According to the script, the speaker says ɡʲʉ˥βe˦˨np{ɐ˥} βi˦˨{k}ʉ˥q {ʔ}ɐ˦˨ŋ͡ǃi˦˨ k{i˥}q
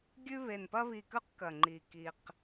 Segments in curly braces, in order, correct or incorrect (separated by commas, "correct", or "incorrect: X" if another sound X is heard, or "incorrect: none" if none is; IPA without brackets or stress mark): correct, correct, incorrect: k, correct